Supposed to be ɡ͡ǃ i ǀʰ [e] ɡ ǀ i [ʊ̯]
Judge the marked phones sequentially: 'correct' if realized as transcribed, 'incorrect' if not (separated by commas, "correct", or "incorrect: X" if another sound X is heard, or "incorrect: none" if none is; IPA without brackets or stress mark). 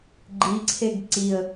correct, incorrect: ə̯